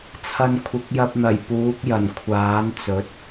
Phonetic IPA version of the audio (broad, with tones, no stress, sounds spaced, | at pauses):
t͡sʰ ɐ˧ n kʷʰ ɪ˨˥ k̚ j ɐ˧ p̚ n̪ ɐ˨˩ j p uː˨˥ k̚ j ɐ˨˩ n kʷʰ aː˨˥ n t͡s ɵ˨˥ t̚